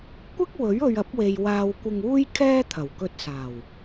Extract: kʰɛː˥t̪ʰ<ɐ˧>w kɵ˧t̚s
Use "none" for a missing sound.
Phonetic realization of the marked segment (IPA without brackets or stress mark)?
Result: ɐ˨˩